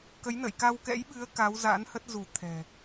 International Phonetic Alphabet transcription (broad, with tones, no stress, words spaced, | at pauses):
kə˨˦j nə̰˧˨jka˧wkɛ̰˧˥jɓɨ˨˦ə̯ ka˨˦wza̰ː˧˥nhə˦˥t̚zu˧˩ t̪ʰɛ̤˨˩